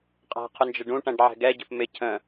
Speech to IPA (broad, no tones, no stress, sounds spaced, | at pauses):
qʼ æ̤ qʰ ʊ n d͡ʒ ə ɖ ũ ʈ æ̃ ɖ ʕ ɛ̤ ɡ ɛ ɟ ə̤ p m ɪ cʰ ə̃